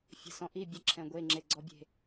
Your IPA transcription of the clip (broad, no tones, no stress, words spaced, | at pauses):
fʲə̤ sɔ̃ʔi bʲə ǁʰɛ̃ɡʷeŋ͡ǁe ɡ͡ǀɔbʲe̤